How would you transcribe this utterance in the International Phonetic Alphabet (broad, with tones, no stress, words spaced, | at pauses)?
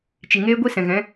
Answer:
t͡ʃi˨ŋeː˦ɡʷi˦ sɛ̃˨ɣɛ̃˨˦